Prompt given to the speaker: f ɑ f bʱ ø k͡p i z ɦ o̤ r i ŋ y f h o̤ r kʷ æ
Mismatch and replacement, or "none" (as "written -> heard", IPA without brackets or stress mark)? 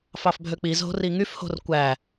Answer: none